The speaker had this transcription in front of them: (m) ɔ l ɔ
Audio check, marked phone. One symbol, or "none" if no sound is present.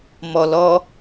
m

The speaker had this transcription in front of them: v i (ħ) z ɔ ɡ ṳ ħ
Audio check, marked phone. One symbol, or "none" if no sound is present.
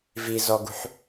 none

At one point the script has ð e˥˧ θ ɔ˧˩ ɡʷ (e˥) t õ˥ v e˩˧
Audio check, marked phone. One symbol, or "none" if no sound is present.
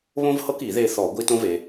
i˥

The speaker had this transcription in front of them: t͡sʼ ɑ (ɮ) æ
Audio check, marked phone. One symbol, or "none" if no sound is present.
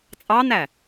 n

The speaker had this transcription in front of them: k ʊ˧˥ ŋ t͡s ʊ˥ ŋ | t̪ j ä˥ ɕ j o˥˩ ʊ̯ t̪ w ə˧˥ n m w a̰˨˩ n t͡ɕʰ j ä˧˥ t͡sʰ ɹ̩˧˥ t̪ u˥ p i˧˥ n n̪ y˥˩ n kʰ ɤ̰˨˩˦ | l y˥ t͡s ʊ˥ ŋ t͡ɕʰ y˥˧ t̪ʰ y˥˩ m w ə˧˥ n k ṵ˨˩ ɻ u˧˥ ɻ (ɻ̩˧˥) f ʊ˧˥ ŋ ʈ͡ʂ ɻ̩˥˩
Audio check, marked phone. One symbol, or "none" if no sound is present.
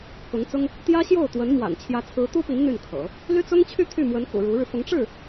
ɻ̩˧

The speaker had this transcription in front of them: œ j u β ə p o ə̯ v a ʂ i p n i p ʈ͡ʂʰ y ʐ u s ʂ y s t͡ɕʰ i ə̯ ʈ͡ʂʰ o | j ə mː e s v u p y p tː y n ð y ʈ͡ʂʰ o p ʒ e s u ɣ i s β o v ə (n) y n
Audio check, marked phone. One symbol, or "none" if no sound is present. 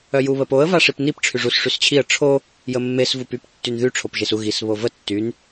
tː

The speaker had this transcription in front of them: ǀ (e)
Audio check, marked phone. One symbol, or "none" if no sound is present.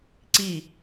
i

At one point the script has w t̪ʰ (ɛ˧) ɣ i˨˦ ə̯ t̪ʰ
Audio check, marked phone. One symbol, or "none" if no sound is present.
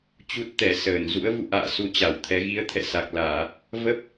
ɛ˨˦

